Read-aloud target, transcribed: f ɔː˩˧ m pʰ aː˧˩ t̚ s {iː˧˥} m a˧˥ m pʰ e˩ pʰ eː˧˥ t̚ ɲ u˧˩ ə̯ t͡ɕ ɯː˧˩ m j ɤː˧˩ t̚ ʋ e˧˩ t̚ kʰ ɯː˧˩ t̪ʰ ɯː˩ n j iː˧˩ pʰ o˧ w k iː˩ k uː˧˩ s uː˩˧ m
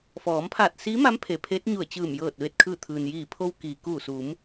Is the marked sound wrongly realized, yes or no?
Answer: no